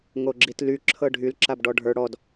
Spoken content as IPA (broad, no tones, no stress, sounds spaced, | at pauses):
ŋ o ɡ͡ǁ i t l y ǁʰ ɤ ɖʱ y l ǁ a b ɖ ɔ ɖʱ ə˞ ɽ ɔ d